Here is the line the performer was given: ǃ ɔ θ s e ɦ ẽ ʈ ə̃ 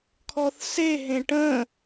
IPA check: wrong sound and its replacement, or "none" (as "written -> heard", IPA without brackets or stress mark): ǃ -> kʰ